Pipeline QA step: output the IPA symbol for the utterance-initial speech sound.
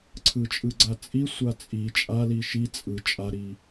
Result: ǀʰ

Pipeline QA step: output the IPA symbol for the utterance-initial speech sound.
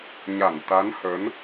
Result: ɲ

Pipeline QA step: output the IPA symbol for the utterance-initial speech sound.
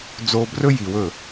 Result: d͡z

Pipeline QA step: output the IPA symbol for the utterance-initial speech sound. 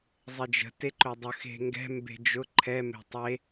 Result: zˤ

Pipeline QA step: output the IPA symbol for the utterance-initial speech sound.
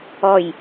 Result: ɔ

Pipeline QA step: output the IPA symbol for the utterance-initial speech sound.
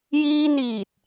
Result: j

